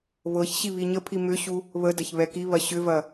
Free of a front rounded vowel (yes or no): no